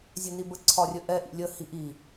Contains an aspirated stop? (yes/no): yes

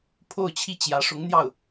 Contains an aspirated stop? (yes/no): yes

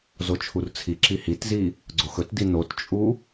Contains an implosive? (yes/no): no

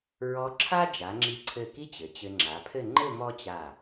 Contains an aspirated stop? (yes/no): yes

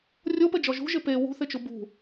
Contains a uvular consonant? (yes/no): no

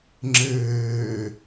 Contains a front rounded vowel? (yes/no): no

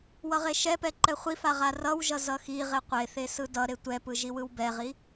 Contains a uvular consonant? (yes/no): yes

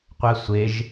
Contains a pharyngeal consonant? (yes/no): no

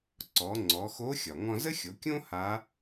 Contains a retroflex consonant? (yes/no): no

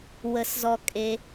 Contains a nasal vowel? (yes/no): no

